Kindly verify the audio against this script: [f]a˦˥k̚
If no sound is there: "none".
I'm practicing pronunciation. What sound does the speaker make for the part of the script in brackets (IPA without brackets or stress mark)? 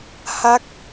h